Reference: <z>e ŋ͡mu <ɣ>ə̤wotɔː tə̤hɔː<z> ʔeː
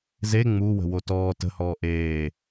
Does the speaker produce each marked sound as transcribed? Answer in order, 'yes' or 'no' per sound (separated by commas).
yes, no, no